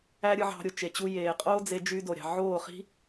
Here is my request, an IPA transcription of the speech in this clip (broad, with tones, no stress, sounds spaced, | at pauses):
æ˦ ɾʲ ɯ˧ ʕ ɑ̤˧ ɾʲ o˨ t͡ʃ e˨ t͡ɕ u˧ j eː˨ qʼ oː˦ d͡z e˧ d͡ʒ y˧ d o˨ ɾʲ ɑ̤˨ ʕ oː˦˨ χ i̤˦